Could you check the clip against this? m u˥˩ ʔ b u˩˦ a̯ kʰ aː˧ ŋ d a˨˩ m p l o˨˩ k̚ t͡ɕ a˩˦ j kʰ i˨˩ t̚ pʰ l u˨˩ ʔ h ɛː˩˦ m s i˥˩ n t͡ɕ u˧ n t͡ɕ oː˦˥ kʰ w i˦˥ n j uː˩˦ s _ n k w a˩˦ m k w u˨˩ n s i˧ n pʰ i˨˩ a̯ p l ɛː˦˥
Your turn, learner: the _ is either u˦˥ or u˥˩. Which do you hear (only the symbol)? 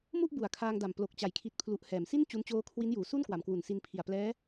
u˥˩